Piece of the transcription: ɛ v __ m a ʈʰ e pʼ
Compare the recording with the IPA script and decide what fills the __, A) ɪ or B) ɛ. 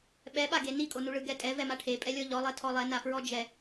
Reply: B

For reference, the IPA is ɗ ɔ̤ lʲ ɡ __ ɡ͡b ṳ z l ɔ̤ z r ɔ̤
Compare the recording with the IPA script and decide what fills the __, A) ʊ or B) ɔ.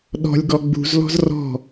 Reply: B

